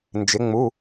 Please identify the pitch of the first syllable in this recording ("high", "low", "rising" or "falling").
rising